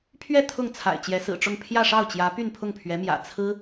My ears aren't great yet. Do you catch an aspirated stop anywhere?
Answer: yes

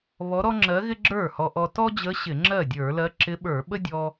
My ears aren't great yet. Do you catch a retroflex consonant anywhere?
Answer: no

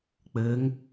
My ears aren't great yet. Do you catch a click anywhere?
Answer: no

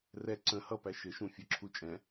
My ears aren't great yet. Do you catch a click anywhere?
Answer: yes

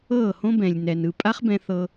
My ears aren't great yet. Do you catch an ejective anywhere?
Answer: yes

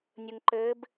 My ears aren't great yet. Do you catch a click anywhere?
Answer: yes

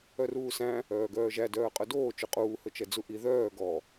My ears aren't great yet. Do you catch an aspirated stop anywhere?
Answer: no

